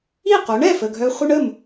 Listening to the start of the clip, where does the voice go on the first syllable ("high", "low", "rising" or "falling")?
falling